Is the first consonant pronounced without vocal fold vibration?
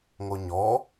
no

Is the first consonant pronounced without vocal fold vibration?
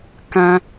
yes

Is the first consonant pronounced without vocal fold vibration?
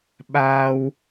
no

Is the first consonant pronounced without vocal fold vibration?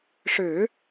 yes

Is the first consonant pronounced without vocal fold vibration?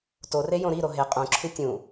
yes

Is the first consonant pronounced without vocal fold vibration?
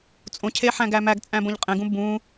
yes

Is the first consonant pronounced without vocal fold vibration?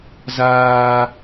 no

